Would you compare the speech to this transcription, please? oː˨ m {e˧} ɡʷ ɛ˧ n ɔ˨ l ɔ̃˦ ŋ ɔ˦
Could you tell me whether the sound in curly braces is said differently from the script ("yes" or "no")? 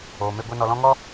no